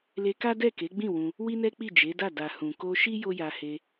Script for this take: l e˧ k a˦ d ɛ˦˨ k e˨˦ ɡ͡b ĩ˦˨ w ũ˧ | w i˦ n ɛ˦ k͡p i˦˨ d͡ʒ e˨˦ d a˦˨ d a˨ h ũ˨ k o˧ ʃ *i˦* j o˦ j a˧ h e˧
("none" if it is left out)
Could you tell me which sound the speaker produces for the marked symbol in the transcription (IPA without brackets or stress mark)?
i˦